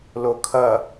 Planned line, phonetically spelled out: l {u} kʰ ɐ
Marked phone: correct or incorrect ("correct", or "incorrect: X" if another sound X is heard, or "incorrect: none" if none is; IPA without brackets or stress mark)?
incorrect: o